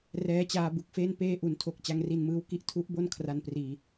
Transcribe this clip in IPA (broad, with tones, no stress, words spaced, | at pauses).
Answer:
rɛː˦˥t͡ɕaː˧bu˨˩k̚feː˥˩n peː˧ʔu˩˦ntʰo˨˩k̚ t͡ɕa˧ŋri˧nmɯː˦˥wki˦˥ʔ tʰu˦˥ʔbo˥˩n kʰra˧npriː˧